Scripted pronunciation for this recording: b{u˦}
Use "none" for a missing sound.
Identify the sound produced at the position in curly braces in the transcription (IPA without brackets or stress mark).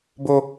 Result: o˦